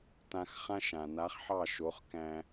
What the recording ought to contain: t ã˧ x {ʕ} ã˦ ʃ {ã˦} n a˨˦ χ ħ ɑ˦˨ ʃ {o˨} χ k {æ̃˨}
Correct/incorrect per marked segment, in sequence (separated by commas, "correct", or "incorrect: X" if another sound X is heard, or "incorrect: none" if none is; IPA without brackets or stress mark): incorrect: χ, incorrect: ã˨, incorrect: o˨˦, incorrect: æ̃˧